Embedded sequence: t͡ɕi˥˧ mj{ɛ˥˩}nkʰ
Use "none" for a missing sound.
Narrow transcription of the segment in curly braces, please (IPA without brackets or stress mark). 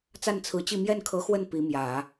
ɛ˥˩